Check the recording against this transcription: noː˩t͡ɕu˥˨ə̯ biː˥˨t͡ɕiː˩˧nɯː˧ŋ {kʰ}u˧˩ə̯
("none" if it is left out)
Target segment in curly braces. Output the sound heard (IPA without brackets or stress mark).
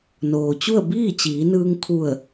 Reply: kʰ